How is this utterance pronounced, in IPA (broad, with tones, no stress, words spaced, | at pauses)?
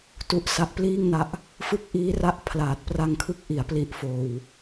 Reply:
tu˦˥ʔsa˦˥ʔpliː˥˩ŋna˦˥ʔ | fɯ˦˥k̚ ʔiː˦˥ra˦˥ʔ pʰlaː˨˩t̚pra˧ŋkʰɯ˦˥k̚ ʔi˩˦a̯pli˨˩ʔfoː˨˩w